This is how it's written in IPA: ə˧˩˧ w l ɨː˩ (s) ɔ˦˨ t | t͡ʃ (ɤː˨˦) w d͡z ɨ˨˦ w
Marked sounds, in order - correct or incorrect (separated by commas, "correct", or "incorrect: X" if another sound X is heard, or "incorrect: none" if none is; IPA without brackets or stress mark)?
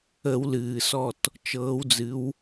correct, correct